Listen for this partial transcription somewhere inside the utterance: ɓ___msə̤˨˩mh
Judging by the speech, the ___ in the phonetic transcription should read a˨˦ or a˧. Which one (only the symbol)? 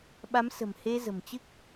a˨˦